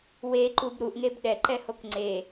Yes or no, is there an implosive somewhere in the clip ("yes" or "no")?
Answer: yes